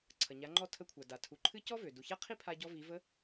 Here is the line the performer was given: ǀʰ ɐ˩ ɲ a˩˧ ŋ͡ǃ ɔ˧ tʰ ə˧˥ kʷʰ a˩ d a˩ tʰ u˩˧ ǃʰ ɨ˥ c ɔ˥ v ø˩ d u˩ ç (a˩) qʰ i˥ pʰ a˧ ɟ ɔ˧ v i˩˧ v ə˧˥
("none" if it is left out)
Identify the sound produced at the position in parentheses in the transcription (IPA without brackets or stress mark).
a˥